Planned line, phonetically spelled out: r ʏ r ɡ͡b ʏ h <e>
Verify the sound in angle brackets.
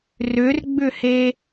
correct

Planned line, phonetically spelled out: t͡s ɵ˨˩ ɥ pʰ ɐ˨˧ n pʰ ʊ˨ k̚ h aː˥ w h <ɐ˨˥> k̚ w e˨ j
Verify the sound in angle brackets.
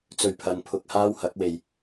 correct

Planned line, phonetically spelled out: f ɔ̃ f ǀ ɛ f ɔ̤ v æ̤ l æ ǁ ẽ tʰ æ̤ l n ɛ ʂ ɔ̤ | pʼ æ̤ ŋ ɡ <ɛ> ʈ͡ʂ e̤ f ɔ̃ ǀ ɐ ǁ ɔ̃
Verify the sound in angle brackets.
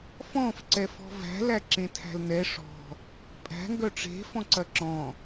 incorrect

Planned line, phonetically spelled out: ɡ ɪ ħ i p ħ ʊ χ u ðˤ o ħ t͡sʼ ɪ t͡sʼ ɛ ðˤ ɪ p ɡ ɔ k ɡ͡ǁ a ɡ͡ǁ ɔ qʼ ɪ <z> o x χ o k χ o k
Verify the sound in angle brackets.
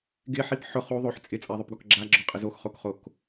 correct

